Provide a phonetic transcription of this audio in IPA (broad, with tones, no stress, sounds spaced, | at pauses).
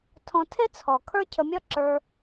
tʰ ɔ̃˧ tʰ e˦ t͡sʰ ɔ˨ kʰ ə˞˦ cʰ ə˧ mʲ ɒ˦ ǁ ə˞˧